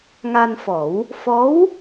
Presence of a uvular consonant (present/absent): absent